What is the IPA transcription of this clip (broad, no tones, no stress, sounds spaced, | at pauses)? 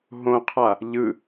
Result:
ɦ õ qʰ a | ʎ ɯ